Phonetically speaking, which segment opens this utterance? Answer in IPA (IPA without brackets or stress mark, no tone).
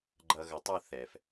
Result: ɡ͡ǃ